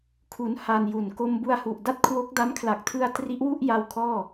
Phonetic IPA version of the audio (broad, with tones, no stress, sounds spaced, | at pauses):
kʰ u˦˥ n h a˧ n j u˨˩ n k o˧ m b u˧ a̯ h u˨˩ ʔ d a˥˩ t̚ kʰ w o˦˥ k̚ d a˦˥ m kʰ l a˨˩ k̚ tʰ ɯ˧ a̯ t r i˦˥ ʔ w u˥˩ ʔ j a˧ w kʰ ɔː˥˩